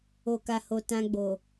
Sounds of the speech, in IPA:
o˨ k a˨ h o˨ t ã˧ ɡ͡b o˨

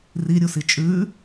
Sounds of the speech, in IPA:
r i ɾʲ u s i t͡ʃʼ ʉ

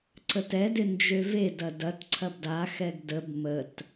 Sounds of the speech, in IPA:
ǀ ə t ɛ d ɪ n d͡ʒ ø v e d ɐ d ɐ t ǀʰ ɐ b d a x ɛ ɡ d ə b m ə t

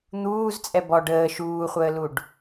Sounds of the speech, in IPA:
n̪ uː z t͡sʼ ɛ b ɔ ɖ əː ʃ uː χʷ əː l u ɖ

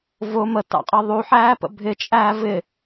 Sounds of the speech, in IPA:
v ʊ m ə t ɑ̰ qʼ ʌ ðˤ u ħ æː p ə̰ bʱ ɪ t͡ʃʼ æː v ɪ

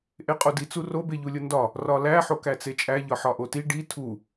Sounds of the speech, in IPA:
ʔ e qʼ o d i t͡s u r o b e ʎ u lʲ o n d ɒ | r ɒ l æ ħ o k æ t͡s e t͡ʃʼ æ ʎ ɒ ħ ɒ ʔ o t i ɖ i tʰ u

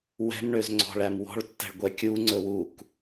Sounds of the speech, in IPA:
w ɛ̤ m ɳ ø z ŋ͡ǀ ɔ̤ ɭ æ m w ɔ̤ ɭ tː ɛ̤ ɭ ɡʷ ɛ kʲ u ŋ͡ǀ ɵ w u k

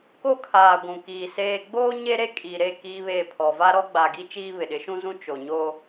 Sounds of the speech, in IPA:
k o˦ kʰ aː˨ ɡʷ ũ˨ k iː˨ s eː˦ ɡ͡b oː˦ ɲ e˦ ɾ e˦ kʼ iː˨ ɾ e˦˨ k iː˦ β eː˦˨ pʰ ɔ˨ v aː˦ ɾ ɔ˦ ɡ͡b a˨ ɡ i˦ t͡ʃ iː˦ β ɪ˨ ɗ ɪ˨˦ ʃ ũ˦ z ũ˦ t͡ʃ o˨ ɲ oː˦

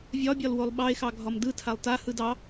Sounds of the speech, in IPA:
vʲ ɒ bʲ ɒ l w o lˠ ɓ ɑ e̯ x ɑ ɡʱ ɒ m d ɯ tʰ a lˠ t a h ɯ d ɑ

